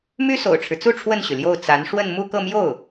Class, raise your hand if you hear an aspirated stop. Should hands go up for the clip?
yes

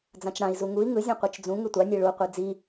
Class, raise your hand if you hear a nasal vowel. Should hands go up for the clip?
yes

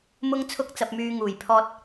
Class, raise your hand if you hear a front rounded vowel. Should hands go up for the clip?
yes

